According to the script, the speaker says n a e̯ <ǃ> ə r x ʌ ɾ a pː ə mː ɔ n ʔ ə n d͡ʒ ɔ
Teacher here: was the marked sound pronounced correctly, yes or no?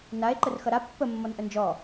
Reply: yes